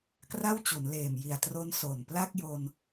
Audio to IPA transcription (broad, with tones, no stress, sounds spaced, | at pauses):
k r a˥˩ w t͡ɕ u˩˦ n l eː˨˩ m j i˨˩ a̯ t r o˦˥ n s o˨˩ n p l a˥˩ k̚ j o˧ n